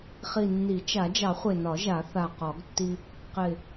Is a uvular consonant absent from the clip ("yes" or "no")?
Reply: no